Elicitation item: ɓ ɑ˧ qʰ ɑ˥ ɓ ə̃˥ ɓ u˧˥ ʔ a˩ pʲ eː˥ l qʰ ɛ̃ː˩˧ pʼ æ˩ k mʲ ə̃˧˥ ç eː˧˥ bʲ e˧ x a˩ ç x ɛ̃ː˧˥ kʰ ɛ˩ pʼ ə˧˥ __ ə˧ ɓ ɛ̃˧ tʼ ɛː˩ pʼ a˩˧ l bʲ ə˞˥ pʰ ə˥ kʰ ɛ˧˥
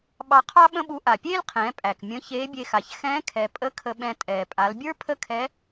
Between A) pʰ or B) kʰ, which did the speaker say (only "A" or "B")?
B